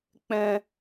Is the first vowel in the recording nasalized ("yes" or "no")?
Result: yes